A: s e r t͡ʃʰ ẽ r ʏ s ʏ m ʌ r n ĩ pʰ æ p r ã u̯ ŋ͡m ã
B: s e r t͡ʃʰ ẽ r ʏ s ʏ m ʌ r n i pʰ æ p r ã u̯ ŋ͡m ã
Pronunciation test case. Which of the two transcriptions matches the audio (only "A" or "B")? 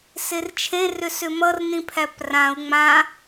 A